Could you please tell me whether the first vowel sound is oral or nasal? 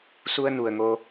oral